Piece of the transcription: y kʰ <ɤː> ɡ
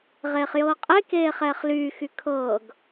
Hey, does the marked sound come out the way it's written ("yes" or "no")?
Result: yes